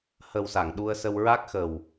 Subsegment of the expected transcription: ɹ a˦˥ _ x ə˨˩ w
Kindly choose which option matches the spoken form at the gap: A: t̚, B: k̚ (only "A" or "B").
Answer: B